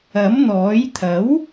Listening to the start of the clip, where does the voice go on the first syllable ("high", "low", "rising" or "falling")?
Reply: rising